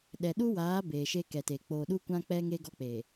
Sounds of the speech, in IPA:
ɗ ɛ˨ ɗ u˦ w aː˨˦ b eː˨ ʃ e˦ k ɛ˨ t e˨ k͡p oː˨ ɗ u˦ kʷ ã˦ k͡p ɛ˦ ŋ e˦ ɡ ɔ˦ k͡p e˨

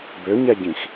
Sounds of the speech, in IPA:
b ø ɲ ɛ ɟ ĩ x

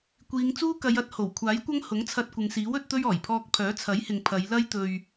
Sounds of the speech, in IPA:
kʷ iː˨˧ ŋ t͡s uː˥ k ɐ˨˧ j ɐ˨˥ t̚ h o˨˩ w kʷʰ aː˨˥ j kʷ ɐ˥ ŋ h ʊ˨˥ ŋ t͡sʰ ɐ˧ t̚ kʷ ɪ˨ ŋ s iː˨˥ w ɵ˨˥ t̚ t̪ ɵ˥ ɥ ɔː˨˩ j pʰ ɔː˧ k̚ pʰ œː˨˥ t͡sʰ ɐ˨˥ j h ɪ˨ ŋ pʰ ɐ˨˧ j l ɐ˥ j t̪ ɵ˧ ɥ

